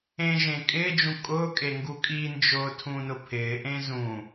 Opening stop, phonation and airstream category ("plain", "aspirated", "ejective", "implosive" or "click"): ejective